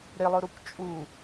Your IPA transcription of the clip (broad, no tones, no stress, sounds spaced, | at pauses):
ɾ ɪ lˠ ʊ ɾ u kʷ t͡ʃʼ u